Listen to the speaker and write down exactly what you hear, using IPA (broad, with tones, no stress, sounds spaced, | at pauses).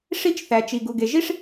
ʂ i˥ t͡ʃ θ æ˩ t͡ʃ i˩ ɡ u˩ ɡ e˩ ʒ i˥ ʂ